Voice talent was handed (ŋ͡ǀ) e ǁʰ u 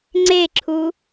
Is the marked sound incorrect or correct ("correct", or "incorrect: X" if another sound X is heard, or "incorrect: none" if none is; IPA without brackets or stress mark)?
correct